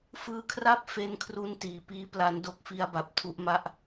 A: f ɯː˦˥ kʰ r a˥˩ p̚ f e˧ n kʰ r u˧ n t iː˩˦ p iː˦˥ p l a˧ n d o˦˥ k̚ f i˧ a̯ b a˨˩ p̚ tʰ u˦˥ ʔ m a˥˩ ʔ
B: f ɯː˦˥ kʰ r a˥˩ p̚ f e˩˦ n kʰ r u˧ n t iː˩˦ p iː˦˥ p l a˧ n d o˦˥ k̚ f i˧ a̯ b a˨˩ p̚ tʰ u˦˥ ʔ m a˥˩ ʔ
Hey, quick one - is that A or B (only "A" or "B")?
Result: A